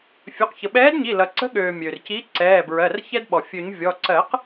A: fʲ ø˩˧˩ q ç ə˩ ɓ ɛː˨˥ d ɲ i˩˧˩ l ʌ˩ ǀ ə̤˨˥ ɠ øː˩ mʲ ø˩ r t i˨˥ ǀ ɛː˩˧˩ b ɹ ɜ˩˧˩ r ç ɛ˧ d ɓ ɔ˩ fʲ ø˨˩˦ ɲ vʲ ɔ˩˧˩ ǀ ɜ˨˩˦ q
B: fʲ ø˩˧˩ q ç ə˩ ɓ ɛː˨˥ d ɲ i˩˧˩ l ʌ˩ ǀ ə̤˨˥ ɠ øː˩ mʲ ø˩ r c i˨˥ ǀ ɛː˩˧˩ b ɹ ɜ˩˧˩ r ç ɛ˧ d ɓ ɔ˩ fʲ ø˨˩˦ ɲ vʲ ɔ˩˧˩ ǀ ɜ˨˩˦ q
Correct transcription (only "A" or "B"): B